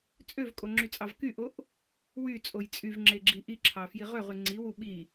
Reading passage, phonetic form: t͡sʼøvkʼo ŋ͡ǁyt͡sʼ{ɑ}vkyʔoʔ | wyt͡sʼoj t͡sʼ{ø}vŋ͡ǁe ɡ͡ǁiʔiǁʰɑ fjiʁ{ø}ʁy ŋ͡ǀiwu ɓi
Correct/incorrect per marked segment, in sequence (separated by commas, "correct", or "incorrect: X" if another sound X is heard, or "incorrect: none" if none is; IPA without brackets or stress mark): correct, incorrect: y, correct